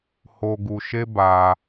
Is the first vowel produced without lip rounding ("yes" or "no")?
no